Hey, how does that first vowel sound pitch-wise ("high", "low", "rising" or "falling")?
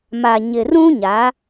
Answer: low